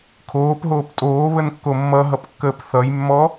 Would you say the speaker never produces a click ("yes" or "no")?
yes